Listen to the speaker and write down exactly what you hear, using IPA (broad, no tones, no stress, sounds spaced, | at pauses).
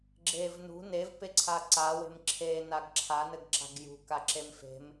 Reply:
ɡ͡ǁ e v n ṳ n e v p e ǀʰ a ǀ a w e̤ m ǁʰ e n a ɡ ǁʰ a n ɘ ɡ ǁ a̤ ɡ j ṳ k a ǁ e m f e̤ m